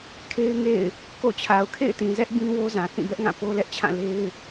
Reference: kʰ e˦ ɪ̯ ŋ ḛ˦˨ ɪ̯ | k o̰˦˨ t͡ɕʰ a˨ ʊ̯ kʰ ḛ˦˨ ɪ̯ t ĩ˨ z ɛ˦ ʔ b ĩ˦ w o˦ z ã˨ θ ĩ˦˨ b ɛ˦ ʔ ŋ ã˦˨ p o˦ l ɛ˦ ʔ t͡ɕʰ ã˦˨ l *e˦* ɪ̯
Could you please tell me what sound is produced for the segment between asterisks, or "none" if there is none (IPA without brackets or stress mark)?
e˦